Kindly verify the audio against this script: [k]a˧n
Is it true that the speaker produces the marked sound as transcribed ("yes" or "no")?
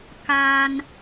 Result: yes